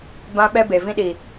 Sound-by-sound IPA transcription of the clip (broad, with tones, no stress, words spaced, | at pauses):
bã˦ɓɛ˦ be˨vĩ˦ ɗi˨